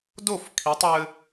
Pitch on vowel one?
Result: falling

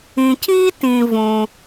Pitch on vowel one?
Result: low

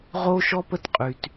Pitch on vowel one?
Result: high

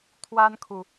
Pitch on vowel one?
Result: high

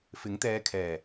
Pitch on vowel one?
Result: rising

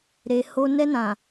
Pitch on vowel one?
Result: low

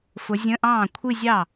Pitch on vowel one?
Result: rising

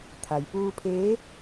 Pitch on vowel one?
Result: low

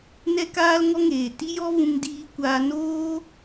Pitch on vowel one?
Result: high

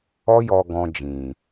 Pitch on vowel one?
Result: high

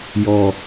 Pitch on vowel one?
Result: low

